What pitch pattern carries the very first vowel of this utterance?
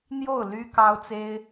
falling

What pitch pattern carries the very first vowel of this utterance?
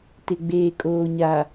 low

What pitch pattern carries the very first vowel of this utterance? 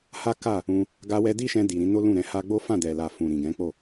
high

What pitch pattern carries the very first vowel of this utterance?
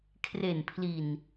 low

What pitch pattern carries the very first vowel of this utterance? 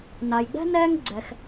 low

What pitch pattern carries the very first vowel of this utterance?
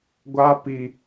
high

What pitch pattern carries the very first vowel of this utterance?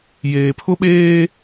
low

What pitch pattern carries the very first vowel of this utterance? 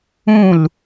falling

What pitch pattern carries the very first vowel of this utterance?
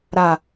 low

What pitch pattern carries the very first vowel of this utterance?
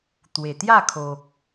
low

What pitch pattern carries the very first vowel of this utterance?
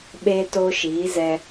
high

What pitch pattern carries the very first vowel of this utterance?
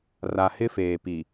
low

